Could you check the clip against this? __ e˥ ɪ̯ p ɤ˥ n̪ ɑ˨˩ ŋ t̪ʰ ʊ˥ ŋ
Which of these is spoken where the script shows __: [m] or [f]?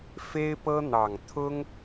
f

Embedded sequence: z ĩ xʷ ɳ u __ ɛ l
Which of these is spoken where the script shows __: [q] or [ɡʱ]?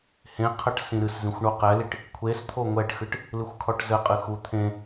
q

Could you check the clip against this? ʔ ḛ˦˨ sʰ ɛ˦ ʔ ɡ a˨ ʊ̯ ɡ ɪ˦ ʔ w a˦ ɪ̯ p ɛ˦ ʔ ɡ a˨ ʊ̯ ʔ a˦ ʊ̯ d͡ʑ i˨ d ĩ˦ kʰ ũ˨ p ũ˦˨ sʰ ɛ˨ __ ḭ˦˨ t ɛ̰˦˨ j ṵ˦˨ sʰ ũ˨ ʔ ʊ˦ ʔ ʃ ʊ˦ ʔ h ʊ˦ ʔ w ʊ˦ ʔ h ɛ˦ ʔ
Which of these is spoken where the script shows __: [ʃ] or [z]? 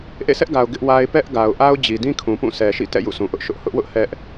ʃ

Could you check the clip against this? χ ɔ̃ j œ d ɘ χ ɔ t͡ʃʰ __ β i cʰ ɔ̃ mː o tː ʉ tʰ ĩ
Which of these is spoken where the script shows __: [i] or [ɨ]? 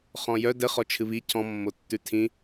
ɨ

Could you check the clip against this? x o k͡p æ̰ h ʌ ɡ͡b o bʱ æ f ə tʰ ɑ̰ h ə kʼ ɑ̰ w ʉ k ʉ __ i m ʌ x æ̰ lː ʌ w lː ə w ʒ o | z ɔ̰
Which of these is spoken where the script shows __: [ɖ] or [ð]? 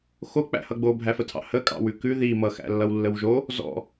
ð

